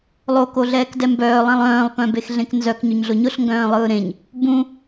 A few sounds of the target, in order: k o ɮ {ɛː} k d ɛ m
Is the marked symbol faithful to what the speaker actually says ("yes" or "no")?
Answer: yes